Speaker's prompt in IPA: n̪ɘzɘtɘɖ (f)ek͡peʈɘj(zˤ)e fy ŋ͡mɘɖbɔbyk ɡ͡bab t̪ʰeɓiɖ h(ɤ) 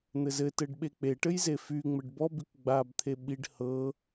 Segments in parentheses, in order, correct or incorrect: incorrect: ɓ, incorrect: z, correct

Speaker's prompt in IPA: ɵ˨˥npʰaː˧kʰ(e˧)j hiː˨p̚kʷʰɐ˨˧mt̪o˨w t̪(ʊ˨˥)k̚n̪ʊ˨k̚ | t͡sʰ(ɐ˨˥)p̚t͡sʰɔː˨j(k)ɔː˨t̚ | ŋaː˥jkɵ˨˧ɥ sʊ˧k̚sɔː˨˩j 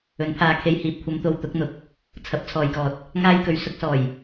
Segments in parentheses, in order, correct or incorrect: correct, correct, correct, correct

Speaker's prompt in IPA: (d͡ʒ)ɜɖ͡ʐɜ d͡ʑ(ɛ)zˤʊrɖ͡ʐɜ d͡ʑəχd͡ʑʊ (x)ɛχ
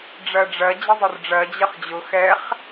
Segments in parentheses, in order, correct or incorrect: incorrect: ɖ͡ʐ, incorrect: ə, correct

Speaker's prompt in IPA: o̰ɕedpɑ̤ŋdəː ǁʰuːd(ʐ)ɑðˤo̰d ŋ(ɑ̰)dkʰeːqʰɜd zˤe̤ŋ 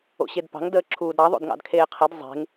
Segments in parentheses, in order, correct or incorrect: incorrect: ɾ, correct

